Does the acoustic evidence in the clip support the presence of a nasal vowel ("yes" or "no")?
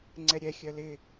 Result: no